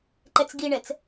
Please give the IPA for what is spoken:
ǃɛt͡sɡiɳɛt͡s

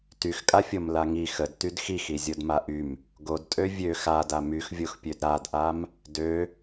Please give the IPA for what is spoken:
tyxkʼafʲom laŋi xəd tydxix izʲodmaʔym | ɡodtʼø vʲø xada myxvʲoxpʲød ɾadʔam | dø

